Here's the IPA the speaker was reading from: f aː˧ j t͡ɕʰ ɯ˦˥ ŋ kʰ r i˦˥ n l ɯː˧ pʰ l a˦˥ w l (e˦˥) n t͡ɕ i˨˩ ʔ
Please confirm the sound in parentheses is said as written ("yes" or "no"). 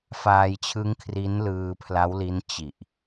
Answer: no